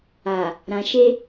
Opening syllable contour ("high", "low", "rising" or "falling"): low